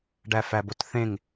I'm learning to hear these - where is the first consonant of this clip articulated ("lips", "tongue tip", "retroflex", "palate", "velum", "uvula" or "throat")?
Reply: retroflex